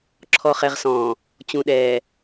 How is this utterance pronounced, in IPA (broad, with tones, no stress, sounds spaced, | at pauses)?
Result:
ǁʰ ɔ˨ χ ɛ˨ ʁ s ɔ̃ː˨ | t͡ɕ ũ˨ ɗ ɛː˨